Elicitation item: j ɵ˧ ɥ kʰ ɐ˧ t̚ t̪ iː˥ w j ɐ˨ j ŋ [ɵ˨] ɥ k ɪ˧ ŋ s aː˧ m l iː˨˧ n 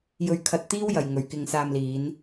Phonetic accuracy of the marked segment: correct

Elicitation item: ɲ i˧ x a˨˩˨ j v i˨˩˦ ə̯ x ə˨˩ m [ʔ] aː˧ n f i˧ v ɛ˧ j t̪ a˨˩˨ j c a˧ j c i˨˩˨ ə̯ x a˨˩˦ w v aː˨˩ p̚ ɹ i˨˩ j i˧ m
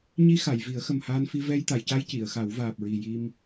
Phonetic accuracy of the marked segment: incorrect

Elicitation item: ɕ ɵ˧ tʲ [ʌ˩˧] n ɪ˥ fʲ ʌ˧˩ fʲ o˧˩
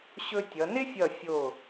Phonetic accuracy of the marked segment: correct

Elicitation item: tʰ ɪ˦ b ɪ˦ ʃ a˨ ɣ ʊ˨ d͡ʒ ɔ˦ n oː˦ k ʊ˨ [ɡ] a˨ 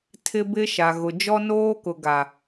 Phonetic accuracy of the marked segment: correct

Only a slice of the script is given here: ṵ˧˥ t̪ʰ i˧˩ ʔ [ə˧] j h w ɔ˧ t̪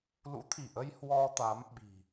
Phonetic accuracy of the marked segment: correct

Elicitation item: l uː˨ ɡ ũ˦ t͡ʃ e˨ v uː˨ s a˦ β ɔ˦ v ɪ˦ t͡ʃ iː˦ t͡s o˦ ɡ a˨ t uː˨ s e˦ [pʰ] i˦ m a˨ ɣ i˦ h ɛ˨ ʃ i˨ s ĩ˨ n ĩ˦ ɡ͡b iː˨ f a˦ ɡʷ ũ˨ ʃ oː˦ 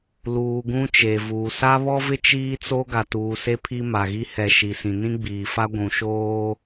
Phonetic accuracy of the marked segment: correct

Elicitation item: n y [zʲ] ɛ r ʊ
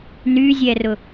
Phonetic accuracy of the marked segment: correct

